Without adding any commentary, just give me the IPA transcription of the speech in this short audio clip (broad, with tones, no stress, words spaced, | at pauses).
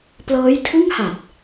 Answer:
plɤː˦˥jtʰɯ˥˩ŋ ha˨˩t̚